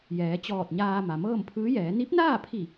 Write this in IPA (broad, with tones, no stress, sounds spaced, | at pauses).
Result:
j ɛː˩˧ t͡ɕ ɔː˧˩ t̚ ɲ aː˧ m a˩ m ɤː˥˨ m pʰ ɯː˧˥ j ɛː˩˧ n i˧˥ p̚ n aː˥˨ pʰ i˧˩